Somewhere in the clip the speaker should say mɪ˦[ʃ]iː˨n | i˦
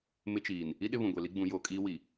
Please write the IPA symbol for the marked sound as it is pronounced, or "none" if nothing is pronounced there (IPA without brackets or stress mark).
t͡ʃ